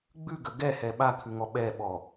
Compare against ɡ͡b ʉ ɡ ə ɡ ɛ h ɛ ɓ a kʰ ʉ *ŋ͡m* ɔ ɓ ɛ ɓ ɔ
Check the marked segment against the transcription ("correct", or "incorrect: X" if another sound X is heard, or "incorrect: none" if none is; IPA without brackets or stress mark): incorrect: ŋ